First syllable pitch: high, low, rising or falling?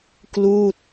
falling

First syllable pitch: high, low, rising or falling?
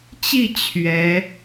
falling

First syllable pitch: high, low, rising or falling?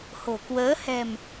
low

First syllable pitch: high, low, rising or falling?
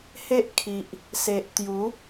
high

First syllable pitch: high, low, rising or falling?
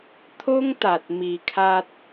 high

